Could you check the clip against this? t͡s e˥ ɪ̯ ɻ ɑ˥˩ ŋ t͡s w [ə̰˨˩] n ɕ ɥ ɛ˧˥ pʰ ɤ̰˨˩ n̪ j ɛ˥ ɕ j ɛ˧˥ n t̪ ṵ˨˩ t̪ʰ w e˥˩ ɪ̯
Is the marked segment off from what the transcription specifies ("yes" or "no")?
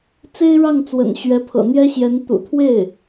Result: no